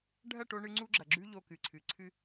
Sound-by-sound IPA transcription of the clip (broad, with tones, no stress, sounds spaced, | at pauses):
ɖʱ ɐ˦˨ ʈ o˧ ɳ ɨ˧ ŋ͡ǀ u˦ ɡ͡ǁ ɐ˨ ɡ͡ǁ ʉ˦ ʎ o˧ k ɨ˨ ǀʰ ɨ˨ ǀʰ ɨ˧